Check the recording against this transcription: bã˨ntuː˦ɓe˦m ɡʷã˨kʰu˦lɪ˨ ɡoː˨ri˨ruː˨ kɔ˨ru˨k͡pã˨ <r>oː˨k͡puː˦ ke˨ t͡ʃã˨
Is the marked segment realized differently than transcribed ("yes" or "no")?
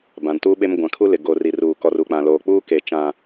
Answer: yes